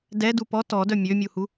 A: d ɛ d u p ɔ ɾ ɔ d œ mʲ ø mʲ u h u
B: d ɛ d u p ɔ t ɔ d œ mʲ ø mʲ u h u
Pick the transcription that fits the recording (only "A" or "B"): B